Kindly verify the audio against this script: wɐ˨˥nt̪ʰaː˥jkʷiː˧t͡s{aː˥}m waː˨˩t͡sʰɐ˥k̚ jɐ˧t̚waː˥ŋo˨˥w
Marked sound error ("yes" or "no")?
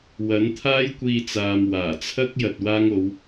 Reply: yes